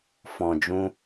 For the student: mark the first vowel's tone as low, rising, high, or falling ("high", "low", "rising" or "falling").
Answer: low